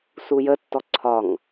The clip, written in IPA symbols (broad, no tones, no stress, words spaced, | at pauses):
sujətːɔ ǀʰɒŋ